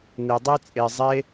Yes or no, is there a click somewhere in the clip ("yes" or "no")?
no